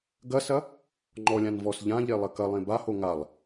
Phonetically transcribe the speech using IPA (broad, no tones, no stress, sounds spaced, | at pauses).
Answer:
ɡ ɐ s ɐ | ŋ͡ǃ ɔ lʲ ã n v ɔ s ʎ ã ʎ e lˠ ɐ k ɐ lˠ ẽ b a h o ŋ a lˠ